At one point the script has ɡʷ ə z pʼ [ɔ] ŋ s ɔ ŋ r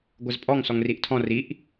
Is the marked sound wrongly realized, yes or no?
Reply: no